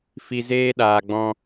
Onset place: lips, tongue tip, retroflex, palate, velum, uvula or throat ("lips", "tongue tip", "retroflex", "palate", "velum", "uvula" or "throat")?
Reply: lips